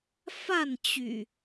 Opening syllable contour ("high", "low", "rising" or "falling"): falling